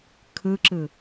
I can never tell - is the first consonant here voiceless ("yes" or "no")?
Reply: yes